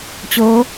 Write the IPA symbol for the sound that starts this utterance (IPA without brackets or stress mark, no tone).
t͡ɕ